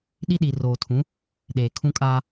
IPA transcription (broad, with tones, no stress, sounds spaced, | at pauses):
ɗ i˦ ɗ i˨ r oː˨ tʰ ũ˨˦ | ɗ eː˨ kʰ ũ˦ kʼ aː˦